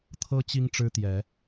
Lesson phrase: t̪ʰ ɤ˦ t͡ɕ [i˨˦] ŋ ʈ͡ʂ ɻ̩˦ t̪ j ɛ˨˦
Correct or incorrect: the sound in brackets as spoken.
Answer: incorrect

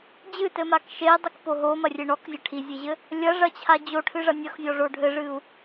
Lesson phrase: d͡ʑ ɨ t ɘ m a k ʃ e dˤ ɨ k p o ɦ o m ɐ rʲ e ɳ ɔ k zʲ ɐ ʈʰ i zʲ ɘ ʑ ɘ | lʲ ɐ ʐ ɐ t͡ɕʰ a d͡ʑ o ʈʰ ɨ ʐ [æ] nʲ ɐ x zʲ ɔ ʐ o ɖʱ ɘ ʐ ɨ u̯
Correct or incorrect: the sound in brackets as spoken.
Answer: incorrect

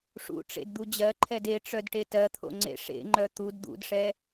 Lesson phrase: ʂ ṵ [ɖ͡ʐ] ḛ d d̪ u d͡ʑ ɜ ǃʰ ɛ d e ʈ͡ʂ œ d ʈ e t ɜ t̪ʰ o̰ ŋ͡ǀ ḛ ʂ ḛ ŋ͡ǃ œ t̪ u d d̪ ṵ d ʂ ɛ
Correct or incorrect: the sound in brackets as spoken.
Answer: incorrect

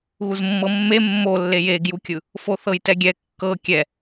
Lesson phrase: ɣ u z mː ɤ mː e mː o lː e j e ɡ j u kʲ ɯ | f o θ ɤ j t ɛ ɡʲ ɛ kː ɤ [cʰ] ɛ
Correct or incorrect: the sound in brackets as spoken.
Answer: incorrect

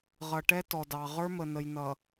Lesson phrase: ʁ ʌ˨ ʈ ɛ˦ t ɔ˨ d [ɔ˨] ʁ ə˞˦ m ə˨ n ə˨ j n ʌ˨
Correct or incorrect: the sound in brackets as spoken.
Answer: incorrect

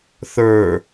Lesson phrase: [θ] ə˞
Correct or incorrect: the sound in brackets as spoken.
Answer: correct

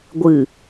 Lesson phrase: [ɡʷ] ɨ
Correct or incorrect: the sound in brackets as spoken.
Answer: correct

